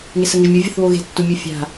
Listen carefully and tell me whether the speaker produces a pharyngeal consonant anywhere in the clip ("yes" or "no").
no